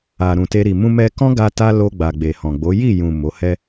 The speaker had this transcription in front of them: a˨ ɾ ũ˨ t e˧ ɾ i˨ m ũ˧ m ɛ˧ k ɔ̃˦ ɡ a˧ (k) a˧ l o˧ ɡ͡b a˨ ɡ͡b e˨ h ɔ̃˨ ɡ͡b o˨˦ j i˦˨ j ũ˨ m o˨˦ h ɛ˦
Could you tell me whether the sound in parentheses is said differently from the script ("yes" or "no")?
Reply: yes